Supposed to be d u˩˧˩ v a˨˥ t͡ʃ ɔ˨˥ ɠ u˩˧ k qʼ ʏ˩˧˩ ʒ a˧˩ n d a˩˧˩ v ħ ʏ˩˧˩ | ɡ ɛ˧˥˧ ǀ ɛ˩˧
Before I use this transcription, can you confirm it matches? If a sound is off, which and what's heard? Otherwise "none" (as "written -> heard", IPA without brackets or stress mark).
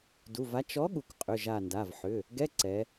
none